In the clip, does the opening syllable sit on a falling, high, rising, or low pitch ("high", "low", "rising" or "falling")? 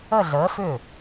falling